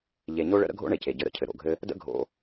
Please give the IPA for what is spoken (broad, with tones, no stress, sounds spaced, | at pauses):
ʎ e˨ ɲ o˥ ɭ ə̰˥ ɾ ə̰˥ ɡʱ o̰˥ ɳ e˩ c e˩ ɟ ɘ˨ ɾ ə̰˩ cʰ ɘ˩ ɾ o̰˩ ɡʱ ɘ˦ | d ə̰˥ ɡʱ o̰˨